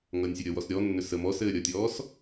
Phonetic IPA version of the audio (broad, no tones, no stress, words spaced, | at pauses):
ŋʌnʲsʲəɾʲʌwɔs ɾʲɔnːʏ sə mɔsɘː ɾʲʌtʲɔːs